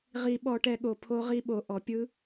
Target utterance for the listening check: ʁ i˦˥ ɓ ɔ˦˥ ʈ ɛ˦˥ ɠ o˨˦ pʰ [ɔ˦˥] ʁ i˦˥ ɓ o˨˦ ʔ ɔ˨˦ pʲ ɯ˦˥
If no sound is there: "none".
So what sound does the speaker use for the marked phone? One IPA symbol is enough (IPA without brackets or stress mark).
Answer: o˦˥